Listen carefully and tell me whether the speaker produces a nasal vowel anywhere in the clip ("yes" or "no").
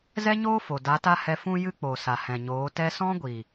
yes